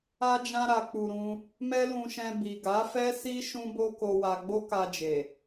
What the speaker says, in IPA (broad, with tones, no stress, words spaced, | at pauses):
a˧d͡ʒã˧ɾa˨k͡pu˨ ɾũ˧ | mɛ˦lũ˧ʃɛ̃˧ bi˨ɡa˨˦fɛ˦si˦ ʃũ˦ bo˦ko˧wa˧ ɡ͡bo˦ka˧d͡ʒe˨